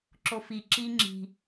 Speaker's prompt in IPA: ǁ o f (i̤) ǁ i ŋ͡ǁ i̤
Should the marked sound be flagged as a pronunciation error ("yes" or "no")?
yes